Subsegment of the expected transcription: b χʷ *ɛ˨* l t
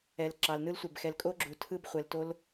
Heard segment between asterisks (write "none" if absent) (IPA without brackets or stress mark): ɛ˨